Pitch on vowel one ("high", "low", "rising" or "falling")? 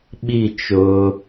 falling